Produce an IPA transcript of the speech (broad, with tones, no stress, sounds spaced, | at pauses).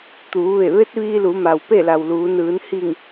t̪ uː˩˧ ʋ e˧˩ ʋ e˧˥ t̚ ʋ iː˧ l u˩˧ m a˩ w p e˥˨ l a˩ w l uː˩˧ n ɯː˩˧ n h i˧˩ ŋ